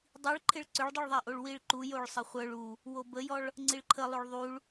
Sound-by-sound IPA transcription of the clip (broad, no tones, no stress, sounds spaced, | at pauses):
dˤ i ɭ ǃʰ ɪ ɭ ǀ ʏ ɭ dˤ u ɭ ðˤ a ʔ o ɭ w i ɭ ǃ u j o ɭ sˤ ə χʷ œ ɭ u | w o b ə j ɔ ɭ | ŋ͡ǀ i ɭ ǃʰ ə lˠ o ɭ ðˤ u ɭ